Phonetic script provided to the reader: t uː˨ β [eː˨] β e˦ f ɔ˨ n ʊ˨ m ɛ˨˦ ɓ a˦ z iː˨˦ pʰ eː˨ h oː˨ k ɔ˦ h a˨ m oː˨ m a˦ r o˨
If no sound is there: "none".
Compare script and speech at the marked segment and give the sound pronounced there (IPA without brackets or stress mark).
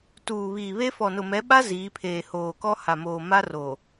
iː˨